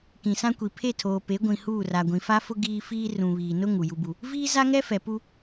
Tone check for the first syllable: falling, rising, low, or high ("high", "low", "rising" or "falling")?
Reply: low